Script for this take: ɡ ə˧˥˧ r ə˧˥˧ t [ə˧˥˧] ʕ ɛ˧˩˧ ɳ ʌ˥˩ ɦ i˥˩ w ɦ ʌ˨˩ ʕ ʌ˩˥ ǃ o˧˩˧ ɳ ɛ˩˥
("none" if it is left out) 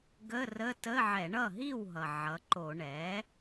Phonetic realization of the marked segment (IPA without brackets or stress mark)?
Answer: ə˧˥˧